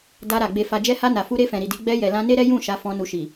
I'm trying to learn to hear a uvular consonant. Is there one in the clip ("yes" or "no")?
no